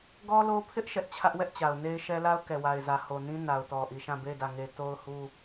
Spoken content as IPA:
ɡ ɔ˦ l o˦ pʰ ɪ˦ ʔ ʃ ɛ˦ ʔ t͡ɕʰ ä˦ ʔ w ɛ˦ ʔ t͡ɕ a˨ ʊ̯ n e˦ ɪ̯ ʃ ɛ˦ l a˦ ʊ̯ k ɛ˨ w a˨ ɪ̯ z ä˨ h o˨ n ĩ˦ n a˨ ʊ̯ t ɔ˨ ʔ i˨ ʃ ã˦˨ b e˦˨ ɪ̯ d ä˦˨ ŋ e˦ t o˦ ʊ̯ h u˦

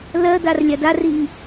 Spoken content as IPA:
l ɜ d a r lʲ a d a r i ŋ

